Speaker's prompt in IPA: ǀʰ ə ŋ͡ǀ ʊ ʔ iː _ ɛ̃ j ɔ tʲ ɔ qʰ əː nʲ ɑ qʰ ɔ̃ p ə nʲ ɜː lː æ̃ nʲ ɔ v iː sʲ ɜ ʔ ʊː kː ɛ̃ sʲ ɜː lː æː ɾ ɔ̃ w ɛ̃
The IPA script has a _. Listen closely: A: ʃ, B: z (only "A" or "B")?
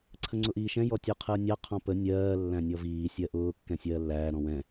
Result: A